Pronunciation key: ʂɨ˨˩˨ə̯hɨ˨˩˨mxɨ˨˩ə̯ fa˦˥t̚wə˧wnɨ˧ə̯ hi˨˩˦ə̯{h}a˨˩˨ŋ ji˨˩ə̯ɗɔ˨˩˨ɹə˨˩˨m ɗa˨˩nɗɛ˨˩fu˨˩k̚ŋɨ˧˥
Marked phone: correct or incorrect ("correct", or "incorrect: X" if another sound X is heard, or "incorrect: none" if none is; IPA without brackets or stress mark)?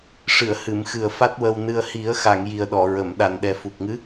incorrect: x